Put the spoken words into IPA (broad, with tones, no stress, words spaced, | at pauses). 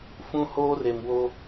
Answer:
fũ˦ hoː˦re˨mwo˦